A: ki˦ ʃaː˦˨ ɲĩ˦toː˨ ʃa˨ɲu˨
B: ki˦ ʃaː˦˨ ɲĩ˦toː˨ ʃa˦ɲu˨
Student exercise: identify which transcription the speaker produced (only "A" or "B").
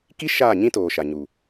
A